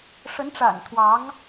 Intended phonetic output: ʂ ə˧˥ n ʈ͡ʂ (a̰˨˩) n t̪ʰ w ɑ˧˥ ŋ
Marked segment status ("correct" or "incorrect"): correct